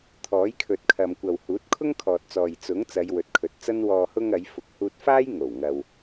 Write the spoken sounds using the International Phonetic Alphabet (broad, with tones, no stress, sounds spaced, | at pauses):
t̪ʰ ɔː˨˥ j kʰ ɵ˨ t̚ kʰ ɐ˨ m kʷ ɐ˨ w h uː˨˥ t̚ kʰ ʊ˥ ŋ kʰ ɔː˨ t̚ t͡s ɔː˨ j t͡s ʊ˨˥ ŋ t͡s ɐ˨˧ j w ɵ˨ t̚ kʰ ɵ˨ t̚ t͡s ɐ˥ n w ɔː˨ h ʊ˧ ŋ ɐ˨˧ j f ʊ˨ k̚ h uː˧ t̚ f aː˥ j ŋ o˨˩ w ŋ ɐ˨ w